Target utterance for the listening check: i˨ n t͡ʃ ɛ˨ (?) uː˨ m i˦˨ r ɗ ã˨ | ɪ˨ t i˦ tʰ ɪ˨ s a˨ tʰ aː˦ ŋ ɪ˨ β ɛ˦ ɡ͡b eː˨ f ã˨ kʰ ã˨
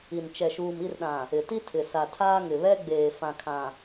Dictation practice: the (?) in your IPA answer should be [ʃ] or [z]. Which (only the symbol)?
ʃ